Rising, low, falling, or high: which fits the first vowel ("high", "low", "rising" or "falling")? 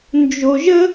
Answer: low